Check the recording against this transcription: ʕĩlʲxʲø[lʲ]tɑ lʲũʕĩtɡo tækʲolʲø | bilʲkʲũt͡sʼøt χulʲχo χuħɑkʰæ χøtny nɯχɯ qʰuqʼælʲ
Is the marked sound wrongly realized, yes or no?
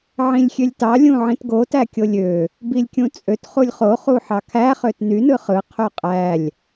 no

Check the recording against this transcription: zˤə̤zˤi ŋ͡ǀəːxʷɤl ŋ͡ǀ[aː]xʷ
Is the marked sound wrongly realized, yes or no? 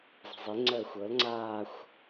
no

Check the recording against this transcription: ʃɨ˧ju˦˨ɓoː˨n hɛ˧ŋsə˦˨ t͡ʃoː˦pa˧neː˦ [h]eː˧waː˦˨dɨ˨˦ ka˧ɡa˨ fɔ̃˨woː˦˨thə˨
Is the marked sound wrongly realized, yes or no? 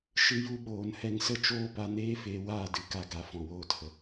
yes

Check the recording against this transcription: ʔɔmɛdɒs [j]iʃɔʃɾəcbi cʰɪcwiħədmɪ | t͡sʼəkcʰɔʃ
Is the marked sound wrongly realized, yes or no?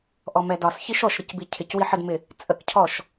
yes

